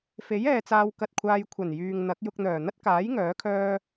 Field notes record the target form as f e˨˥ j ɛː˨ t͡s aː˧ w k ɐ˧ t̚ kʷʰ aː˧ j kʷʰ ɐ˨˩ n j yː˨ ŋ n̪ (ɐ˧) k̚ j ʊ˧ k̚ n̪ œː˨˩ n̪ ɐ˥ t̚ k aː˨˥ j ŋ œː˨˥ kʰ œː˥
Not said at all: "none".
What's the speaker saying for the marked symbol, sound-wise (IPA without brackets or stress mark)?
ɐ˨˥